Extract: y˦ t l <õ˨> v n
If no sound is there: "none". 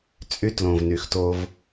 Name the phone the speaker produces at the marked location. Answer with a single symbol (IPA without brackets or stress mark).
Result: õ˨